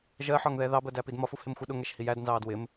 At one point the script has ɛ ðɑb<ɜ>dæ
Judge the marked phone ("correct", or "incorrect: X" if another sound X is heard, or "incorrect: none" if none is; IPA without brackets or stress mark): correct